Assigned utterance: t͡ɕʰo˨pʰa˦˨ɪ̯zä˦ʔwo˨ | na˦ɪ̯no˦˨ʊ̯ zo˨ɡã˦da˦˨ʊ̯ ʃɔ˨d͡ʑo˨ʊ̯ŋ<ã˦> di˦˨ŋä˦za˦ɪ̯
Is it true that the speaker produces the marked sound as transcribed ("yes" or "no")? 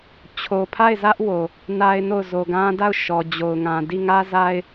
no